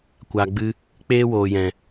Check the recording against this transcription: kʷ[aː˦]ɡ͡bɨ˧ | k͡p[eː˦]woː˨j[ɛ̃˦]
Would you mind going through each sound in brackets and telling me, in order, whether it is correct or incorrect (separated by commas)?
incorrect, correct, incorrect